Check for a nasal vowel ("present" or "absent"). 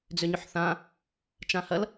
present